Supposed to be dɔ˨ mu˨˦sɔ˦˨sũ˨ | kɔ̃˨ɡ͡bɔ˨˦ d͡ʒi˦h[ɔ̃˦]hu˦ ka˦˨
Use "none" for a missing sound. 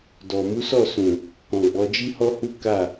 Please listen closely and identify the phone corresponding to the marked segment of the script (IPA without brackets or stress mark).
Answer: ɔ˦